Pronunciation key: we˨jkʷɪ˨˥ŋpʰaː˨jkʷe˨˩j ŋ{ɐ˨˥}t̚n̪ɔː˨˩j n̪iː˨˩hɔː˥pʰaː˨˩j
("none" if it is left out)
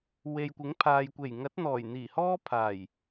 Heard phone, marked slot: ɐ˨˥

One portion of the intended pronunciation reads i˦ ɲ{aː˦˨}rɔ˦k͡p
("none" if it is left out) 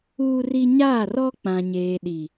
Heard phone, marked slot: aː˦˨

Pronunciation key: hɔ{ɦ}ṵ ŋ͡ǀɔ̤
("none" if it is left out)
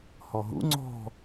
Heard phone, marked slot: ɦ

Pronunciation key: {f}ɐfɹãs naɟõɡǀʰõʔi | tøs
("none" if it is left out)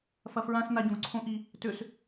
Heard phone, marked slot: f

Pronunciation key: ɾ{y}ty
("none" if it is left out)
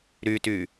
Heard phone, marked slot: y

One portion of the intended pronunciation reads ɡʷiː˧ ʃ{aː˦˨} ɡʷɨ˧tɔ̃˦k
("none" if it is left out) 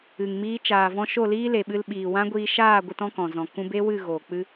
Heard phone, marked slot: aː˦˨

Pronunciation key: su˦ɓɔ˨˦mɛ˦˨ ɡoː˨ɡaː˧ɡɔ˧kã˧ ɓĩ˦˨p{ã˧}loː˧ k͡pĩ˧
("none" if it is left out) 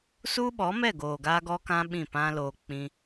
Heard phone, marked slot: ã˦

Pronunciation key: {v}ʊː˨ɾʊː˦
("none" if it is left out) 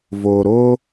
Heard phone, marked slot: v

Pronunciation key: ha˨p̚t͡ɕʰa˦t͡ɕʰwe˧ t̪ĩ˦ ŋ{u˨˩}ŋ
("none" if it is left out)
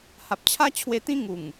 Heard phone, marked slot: u˨˩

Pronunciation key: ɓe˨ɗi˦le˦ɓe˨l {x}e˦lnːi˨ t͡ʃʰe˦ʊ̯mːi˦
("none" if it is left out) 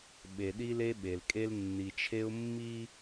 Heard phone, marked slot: kʼ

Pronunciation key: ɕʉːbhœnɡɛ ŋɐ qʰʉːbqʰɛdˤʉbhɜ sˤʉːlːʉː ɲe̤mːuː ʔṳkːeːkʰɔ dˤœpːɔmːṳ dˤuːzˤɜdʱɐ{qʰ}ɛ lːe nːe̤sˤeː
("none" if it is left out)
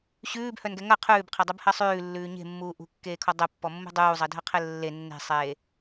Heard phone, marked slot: qʰ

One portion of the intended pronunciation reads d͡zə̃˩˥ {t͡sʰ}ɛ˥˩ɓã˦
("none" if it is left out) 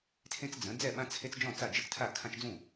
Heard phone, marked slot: d͡z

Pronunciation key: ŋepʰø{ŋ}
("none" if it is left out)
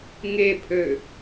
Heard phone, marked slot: none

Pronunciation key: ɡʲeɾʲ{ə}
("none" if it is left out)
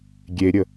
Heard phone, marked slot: ə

